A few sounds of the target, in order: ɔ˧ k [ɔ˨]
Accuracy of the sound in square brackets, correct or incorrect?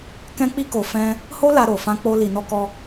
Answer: incorrect